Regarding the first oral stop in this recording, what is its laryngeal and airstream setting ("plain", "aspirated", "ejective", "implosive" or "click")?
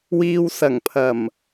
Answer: aspirated